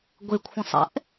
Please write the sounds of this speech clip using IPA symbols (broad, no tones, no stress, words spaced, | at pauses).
ɡʷekʷʰɛ̃sˤɛ̰ʔ